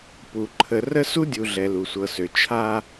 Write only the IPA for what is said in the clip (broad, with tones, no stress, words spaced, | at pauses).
pu˨ ǃʰə˨ rə˦su˦dʲu˨ ɮɛ˨lu˨sʷɤ˨sø˨ t͡ʃʰa˦